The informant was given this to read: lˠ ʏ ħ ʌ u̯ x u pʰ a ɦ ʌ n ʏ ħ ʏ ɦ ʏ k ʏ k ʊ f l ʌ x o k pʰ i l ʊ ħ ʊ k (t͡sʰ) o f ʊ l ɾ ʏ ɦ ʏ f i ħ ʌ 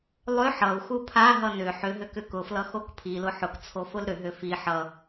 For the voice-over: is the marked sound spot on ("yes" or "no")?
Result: yes